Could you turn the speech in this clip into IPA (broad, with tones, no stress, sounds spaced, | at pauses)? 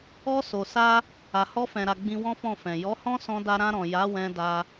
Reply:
ɔ˧ s o˨ s a˧ | a˨ h ɔ˧ f ɛ̃˨ ɾ a˨ ɡ͡b ĩ˧ w ɔ̃˦ f ɔ̃˦˨ f ɛ̃˨ j ɔ˨˦ h ɔ̃˦ s ɔ̃˧ d a˧ ɾ ã˧ ɾ ɔ̃˨ j a˨˦ w ɛ̃˧ d a˧